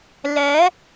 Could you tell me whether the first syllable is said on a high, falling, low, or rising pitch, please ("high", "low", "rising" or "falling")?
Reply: rising